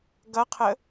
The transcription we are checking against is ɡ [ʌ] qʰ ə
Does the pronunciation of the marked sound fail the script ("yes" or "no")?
no